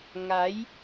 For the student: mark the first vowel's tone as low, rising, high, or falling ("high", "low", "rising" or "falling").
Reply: rising